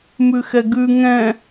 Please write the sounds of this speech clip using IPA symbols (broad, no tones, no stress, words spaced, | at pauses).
mʉxɛɡʉ ŋɛ̃